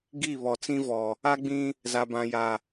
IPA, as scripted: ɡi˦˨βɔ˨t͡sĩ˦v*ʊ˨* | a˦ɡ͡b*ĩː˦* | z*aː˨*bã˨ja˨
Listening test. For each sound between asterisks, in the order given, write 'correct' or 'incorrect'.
incorrect, incorrect, incorrect

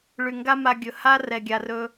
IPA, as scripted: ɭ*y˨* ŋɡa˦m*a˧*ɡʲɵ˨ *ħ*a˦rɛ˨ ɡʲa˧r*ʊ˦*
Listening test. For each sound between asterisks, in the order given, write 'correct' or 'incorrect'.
correct, correct, incorrect, incorrect

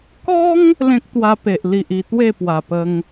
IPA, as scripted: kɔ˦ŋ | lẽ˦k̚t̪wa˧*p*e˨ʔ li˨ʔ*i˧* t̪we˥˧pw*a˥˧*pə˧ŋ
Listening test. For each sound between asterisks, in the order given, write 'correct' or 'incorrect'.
correct, correct, incorrect

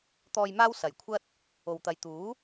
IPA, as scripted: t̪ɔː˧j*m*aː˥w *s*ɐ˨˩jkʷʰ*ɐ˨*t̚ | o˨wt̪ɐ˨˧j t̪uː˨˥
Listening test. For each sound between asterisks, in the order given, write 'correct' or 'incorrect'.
correct, correct, incorrect

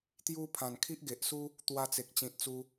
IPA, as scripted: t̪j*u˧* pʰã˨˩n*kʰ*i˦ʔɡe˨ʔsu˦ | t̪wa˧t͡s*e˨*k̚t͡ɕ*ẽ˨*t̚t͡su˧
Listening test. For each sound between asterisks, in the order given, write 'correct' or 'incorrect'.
incorrect, correct, correct, incorrect

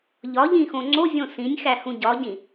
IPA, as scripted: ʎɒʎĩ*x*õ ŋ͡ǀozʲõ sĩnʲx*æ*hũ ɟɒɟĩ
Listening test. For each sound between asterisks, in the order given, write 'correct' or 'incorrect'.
correct, correct

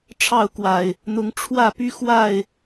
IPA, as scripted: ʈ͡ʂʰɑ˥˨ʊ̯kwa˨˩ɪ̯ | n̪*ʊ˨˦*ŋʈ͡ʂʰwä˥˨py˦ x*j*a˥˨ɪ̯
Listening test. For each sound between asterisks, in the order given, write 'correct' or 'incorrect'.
correct, incorrect

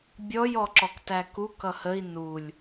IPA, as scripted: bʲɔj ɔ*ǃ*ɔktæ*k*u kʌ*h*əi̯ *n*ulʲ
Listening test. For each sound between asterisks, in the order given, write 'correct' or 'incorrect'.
incorrect, correct, correct, correct

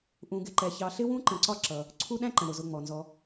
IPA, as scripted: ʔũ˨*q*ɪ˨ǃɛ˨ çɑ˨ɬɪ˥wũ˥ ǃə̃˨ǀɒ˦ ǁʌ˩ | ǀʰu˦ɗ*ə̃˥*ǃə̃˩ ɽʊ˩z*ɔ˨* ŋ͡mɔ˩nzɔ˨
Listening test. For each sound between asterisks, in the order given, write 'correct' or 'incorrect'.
incorrect, incorrect, incorrect

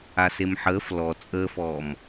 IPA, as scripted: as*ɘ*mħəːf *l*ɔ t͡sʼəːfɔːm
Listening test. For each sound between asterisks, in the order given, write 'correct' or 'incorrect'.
incorrect, correct

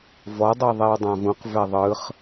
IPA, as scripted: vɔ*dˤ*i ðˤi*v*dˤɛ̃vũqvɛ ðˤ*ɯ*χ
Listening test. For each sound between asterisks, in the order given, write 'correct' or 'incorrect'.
correct, incorrect, correct

